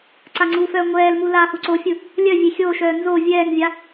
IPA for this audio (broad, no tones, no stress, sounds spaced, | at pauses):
ǀ a ŋ͡ǀ u f œː ŋʷ ɛː l m u l aː h u ǀ o fʲ ɯ | lʲ œ vʲ e xʲ o ʃ œː n z o vʲ ɛː ŋ vʲ a